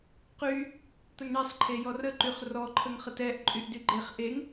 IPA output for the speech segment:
q y | t̪ ə ŋ ɳ e sˤ ǃʰ e j ɔ r ə ǃ y χ r ɔ ǃʰ ə ŋ χ ə t ɛ ʔ ǃʼ y ʔ d y ɡ͡ǃ e χ ʔ e ŋ

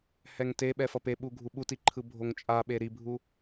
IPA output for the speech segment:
h ɛ ŋ t e ɓ ɛ f ʌ p e ɓ u ɡʱ u ɓ u t i ǃʰ ɯ bʱ o ŋ t͡ʃʼ a ɓ e ɾ i bʱ u

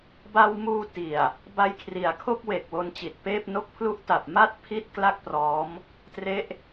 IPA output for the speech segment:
b a˧ w m uː˧ t i˨˩ a̯ | b a˧ j kʰ r i˩˦ a̯ kʰ o˥˩ k̚ w e˨˩ k̚ w o˧ n t͡ɕ i˨˩ t̚ p eː˥˩ p̚ n o˥˩ k̚ pʰ l u˥˩ ʔ t a˨˩ p̚ m a˥˩ t̚ pʰ i˥˩ t̚ k l a˥˩ k̚ p r ɔː˦˥ m | t r e˦˥ ʔ

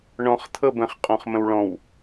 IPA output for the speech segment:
ɳ ɔ̃ χ t̪ʰ ɤ b ə̃ χ qʼ ɔ̃ χ m ə̃ w ɭ ɔ̃ w

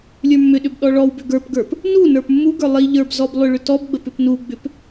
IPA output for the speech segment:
lʲ ə˞ mː ʏ ɗ ʏ b ɗ ɔ ɭ ɔ w b ʏ ɡ ə˞ p ɡ ə˞ p | n u n ə˞ p mː u ɡ ə˞ lˠ i ʎ ə˞ b z ɔ b lˠ ʏ ɭ ʏ t ɔ b ɡ͡b ə p ʏ p n u ɡ͡b ʏ p

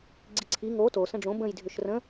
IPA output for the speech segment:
ɡ͡ǀ i ǀʰ i ŋ o t o s ə̃ ɖ͡ʐ õ b ə̃ j dʱ ʏ ʃ r ə̃

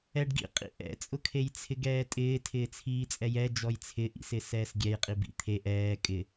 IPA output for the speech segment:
ɛ ɖ ɡ ḭ qʼ ḭ ʔ ɛ̰ t͡sʼ ʊ kʰ e j t͡sʰ ɪ ɡ ɛː tʼ ɪː tʰ ɪː t͡sʰ iː t͡sʼ ɛ j ɛ d͡ʒ ɔ j t͡sʰ ɪ ʔ ḭ s ɪ s ɛː s ɡʲ ɛ j qʼ i b ḭ t̪ʰ e ʔ ɛː kʼ ɪ

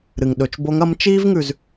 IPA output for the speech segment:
ɾ ɨ˩ ŋ ɗ ɵ˩˧ t͡ʃ b o˧˥ ŋ ɐ˧˥ m t͡ʃ iː˥ v ŋ ʉ˩ z

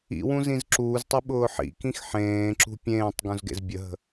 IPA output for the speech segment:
ḭ w ũ z ĩ z ǁ uː z tˤ i ɓ ʊː ħ ḭ k ĩ x ħ ẽː ǁ ṳ pʲ ẽː tˤ ɡ ũ z ɡ ḛ z bʲ ə ɦ ə̤

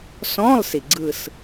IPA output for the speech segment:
s ɔ̃ː˧˥˧ lˠ s i˩ ɡ͡ǀ ɯ˦˨ s

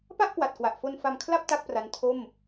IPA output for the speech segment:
p a˥˩ ʔ k w a˨˩ t̚ k w a˨˩ ʔ f o˧ n f a˧ m kʰ l a˥˩ p̚ t a˥˩ k̚ p r a˦˥ n tʰ o˥˩ m

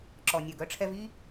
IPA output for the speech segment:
ǁ ɔ˩ nʲ œ˩ ɡ œ˩˥ ʈ͡ʂʰ ɛ˧ v i˥

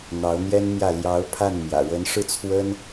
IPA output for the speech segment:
n̪ ɑ˧˥ ʊ̯ n̪ j ɛ˥ n m j ä˥˩ l j ɑ˧˥ ʊ̯ pʰ a˥˩ n m j ä̰˨˩ ɻ ə˧˥ n ʂ ɻ̩˥˩ t͡sʰ w ə˥ n

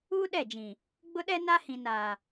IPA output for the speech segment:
uː˦ ɗ ɛ˦˨ d͡ʒ ĩ˨ | ɡ͡b ʊ˦ ɗ ɛ˦ n a˦ h ĩ˨ n aː˨

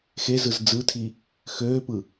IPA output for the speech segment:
x e z ɯ z d͡z ɯ tʰ i | x øː p ɯ

